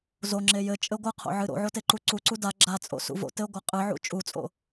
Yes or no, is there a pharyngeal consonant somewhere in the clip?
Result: yes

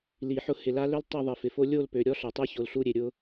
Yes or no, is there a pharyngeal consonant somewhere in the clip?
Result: yes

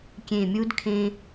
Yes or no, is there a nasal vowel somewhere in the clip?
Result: yes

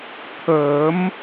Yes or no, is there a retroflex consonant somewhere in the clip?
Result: no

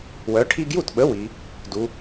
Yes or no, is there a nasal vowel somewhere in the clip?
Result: no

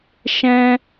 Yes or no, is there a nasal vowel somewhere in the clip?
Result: yes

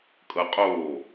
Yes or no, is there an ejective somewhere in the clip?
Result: yes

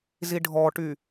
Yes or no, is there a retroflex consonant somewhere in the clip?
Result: yes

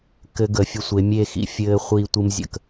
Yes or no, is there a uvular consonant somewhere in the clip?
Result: yes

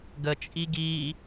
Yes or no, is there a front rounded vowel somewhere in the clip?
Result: no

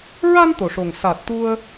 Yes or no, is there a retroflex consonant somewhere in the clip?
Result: yes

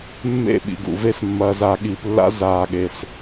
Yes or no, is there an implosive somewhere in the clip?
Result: yes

